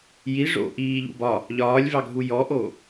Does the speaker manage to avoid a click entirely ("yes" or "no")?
yes